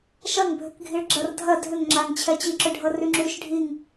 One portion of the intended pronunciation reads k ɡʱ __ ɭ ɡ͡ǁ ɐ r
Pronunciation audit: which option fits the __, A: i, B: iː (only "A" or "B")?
A